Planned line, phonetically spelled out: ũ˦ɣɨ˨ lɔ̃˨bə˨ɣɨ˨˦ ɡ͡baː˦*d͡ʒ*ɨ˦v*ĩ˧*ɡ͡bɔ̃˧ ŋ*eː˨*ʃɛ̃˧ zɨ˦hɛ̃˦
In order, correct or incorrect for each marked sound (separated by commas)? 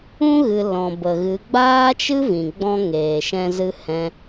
incorrect, incorrect, correct